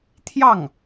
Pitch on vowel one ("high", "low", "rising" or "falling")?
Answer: falling